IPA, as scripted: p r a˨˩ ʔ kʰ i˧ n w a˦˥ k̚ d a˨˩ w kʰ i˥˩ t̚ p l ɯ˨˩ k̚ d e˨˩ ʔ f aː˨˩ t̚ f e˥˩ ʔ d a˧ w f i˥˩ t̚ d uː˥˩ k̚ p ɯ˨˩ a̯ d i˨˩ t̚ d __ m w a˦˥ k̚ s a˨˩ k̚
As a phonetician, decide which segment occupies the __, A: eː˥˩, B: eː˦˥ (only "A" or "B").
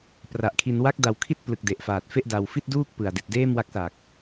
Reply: A